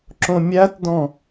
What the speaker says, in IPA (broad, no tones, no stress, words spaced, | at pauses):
ǁõmʲætdɔ̃